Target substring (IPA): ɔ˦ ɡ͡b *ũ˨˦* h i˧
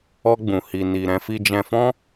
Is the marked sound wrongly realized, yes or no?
yes